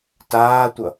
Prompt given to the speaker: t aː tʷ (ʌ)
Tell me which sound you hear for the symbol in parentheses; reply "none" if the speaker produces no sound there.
ʌ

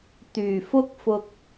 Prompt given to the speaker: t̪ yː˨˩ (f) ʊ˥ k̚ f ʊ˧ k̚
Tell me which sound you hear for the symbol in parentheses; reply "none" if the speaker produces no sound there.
f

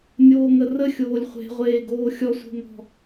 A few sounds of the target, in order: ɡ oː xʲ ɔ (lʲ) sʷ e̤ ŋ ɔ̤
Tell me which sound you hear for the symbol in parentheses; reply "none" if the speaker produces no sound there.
none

